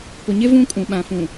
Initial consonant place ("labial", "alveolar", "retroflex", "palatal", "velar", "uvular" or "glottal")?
labial